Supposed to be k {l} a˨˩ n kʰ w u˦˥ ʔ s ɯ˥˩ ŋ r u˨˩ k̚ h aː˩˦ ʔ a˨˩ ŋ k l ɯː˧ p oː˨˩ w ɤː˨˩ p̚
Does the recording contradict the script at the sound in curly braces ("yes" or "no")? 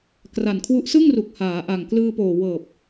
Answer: yes